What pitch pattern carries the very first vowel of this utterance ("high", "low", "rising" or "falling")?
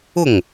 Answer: falling